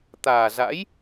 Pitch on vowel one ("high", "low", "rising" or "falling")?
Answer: low